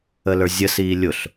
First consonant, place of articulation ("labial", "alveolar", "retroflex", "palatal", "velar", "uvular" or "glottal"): alveolar